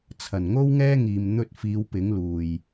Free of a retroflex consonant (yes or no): yes